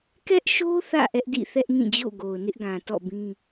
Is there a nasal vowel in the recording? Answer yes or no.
yes